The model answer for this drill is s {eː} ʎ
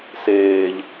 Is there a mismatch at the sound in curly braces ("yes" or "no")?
no